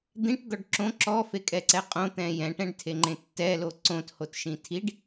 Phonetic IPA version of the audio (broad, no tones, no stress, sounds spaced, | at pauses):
d̪ ĩ ʈ d̪ ɔ ɖ ǁ õ ǁ ɔ f e kʼ ɛ ǀ ɛ qʼ õ t̪ ɛ̃ j ɛ̃ ʈ ɛ̃ ɖ tʰ e ŋ͡ǃ ẽ tː ɛ l o ǀ õ t h o t ʃ ĩ tʰ i ɖ